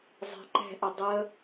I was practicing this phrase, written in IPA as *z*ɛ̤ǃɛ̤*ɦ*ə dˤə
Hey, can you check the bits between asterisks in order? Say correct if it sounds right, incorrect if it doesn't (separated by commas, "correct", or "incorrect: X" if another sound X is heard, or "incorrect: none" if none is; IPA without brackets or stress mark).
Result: incorrect: zˤ, incorrect: ʔ